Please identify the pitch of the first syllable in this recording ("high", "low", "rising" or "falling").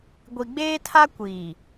low